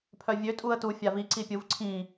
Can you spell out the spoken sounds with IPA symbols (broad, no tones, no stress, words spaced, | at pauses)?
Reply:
pʰœvʲø tʼuə̯tu fʲavi ǀipʲuv ǀʰĩ